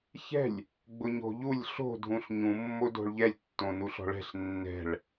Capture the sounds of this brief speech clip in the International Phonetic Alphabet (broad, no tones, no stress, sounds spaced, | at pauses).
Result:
ç ɛ̤ lʲ | ɡ͡b ʊ ɲ o̤ ʎ u lʲ ɬ o̤ dʱ ũ ɬ ɲ ũ mː o d o̤ ɭ ʎ ɛ lʲ tː õ n u ɬ ɔ̤ ɭ ɛ̤ ɬ nː ɛ̤ ɭ